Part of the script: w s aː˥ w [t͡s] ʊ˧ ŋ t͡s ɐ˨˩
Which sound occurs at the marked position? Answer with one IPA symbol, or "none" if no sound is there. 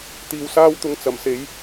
t̪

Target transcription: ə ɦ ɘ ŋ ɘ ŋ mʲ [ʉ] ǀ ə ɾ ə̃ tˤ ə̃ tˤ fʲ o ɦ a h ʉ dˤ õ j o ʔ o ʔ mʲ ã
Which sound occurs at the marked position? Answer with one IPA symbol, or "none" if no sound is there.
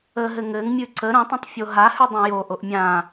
ʉ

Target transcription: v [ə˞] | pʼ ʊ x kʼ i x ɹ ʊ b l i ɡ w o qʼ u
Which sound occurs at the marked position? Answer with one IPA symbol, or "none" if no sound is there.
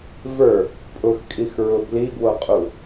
ə˞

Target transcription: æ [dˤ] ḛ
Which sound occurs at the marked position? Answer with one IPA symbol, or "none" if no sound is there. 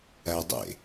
dˤ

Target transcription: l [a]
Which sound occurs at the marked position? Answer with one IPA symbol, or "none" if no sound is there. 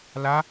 a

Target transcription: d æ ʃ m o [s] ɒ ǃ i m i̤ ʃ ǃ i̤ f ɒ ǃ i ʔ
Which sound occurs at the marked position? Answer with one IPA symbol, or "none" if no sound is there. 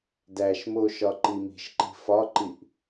ʃ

